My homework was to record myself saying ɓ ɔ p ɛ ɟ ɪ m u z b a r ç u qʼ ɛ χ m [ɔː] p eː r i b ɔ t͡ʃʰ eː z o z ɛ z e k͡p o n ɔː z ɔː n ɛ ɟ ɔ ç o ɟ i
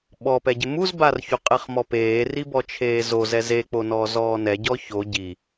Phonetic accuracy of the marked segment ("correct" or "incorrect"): incorrect